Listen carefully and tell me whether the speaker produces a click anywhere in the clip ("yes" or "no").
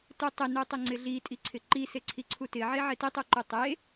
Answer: yes